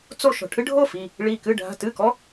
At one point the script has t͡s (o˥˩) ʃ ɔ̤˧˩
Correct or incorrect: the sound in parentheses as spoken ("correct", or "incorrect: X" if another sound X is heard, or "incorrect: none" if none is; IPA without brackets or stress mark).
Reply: correct